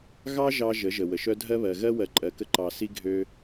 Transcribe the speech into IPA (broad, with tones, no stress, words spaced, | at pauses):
ɣɑ˦ʒɑ˧ ʒə˨˦ʒə˨ wə˨ʃœ˦ dʱɜ˦βɜ˨ ɣɜ˦ wɜ˨ǃʼɜ˨kə˧ ǃɑ˨ si˦ ɡʱø˧